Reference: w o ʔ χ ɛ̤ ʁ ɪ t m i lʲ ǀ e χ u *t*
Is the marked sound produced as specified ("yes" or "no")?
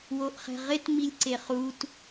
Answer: yes